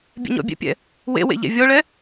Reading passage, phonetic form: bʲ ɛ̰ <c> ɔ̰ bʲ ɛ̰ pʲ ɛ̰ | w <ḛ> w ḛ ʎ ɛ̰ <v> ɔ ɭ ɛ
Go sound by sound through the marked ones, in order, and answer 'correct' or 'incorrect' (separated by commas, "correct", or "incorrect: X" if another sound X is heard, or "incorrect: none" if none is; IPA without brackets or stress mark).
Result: incorrect: ɲ, correct, incorrect: vʲ